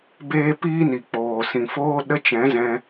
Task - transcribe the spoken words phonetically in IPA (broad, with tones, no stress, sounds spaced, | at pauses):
b eː˦ p iː˦ n i˨ k͡p oː˨ s ĩ˨ f oː˦ ɗ ə˦ t͡ʃ ɛ̃˨˦ z ɛ̃˧